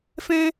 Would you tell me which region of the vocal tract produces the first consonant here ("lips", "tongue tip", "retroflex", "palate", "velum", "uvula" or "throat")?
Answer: lips